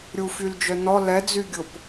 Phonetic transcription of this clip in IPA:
ɾʲ u f y l d͡ʒ œ n ɔ l ɛ d͡z y ɡʲ ʊ p

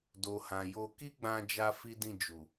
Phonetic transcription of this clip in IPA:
d o˨ h ã˨ j o˧ k i˦ ɡ͡b ã˧ d͡ʒ a˦ f i˦ d ĩ˦˨ d͡ʒ u˨

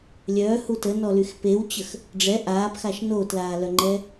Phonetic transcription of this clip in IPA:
lʲ œː h u t ə n ɔ l y x p e w t͡ɕ ə x | ɖ͡ʐ ɛ ʔ aː p x a ʃ n oː t l aː l œ ŋ͡ǃ ɛ

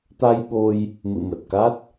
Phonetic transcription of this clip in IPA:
t̪ a˧ j ɓ o˧ j | m ɨ̰˧˨ m ə˨˩ t̚ k a˦˥ t̚

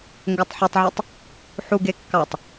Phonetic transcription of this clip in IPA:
ŋ ɡ o tˤ ħ ɯ tˤ ʕ y tˤ | ħ u ɡ e kː ɑ tˤ

